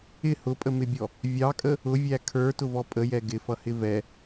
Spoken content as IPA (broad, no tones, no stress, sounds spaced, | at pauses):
ɪ h ʊ pʼ ə m ɪ bʲ ɔ | vʲ ɑ kʼ ə | ʊ vʲ æ kʰ ə˞ t ʊ v ɔ pʼ ə j ɛ ɡ ɪ f ʌ h ɪ v ɛ